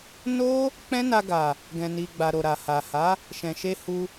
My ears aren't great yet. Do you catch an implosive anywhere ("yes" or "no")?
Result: no